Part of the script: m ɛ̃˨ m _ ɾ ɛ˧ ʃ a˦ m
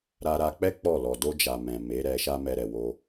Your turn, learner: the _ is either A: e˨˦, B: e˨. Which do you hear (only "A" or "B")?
A